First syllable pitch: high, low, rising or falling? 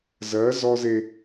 rising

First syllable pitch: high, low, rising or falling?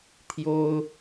high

